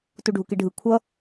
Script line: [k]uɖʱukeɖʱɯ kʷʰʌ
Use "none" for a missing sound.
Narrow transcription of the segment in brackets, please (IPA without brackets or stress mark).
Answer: t